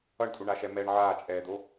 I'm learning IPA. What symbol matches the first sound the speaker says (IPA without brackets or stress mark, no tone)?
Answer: ʌ